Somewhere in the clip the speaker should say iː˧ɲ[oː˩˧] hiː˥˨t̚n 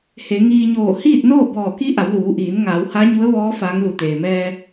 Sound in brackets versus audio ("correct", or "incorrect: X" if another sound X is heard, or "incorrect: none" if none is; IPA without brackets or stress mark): incorrect: oː˧˩